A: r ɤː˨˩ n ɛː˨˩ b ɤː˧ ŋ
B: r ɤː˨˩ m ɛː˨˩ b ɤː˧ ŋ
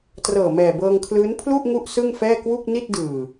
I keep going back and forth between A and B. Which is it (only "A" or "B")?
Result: B